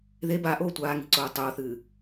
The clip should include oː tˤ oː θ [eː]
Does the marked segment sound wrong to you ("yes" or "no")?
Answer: yes